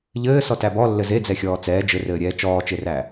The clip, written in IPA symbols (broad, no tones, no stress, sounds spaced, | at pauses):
ʎ ɘː s ɔ t æ b ɔ lː ɘ z e d͡z ɛ xʲ ɔː t͡s ɛː d͡ʒ ɘ r ɘː ɾʲ ɛː t͡ʃ ɔː t͡ʃ e r æ